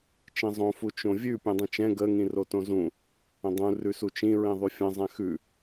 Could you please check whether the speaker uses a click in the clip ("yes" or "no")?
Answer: no